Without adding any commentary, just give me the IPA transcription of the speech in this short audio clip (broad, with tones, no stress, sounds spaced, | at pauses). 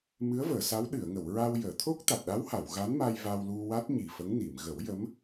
m ɨ˧˥ ə̯ v əː˨˩˨ s a˧˥ w ɗ ɨ˨˩˨ ə̯ ŋ ə˨˩˨ w ɹ a˧ w j əː˨˩˨ t̪ʰ o˦˥ k̚ t̪ a˨˩ t̚ ɗ a˧˥ w h a˨˩˨ w ɣ a˧˥ n m a˧ j v a˧ w l u˧ w a˦˥ t̚ ɲ i˨˩ f ə˧˥ ŋ n i˨˩˨ m ɣ ə˨˩˦ w j ə˧˥ m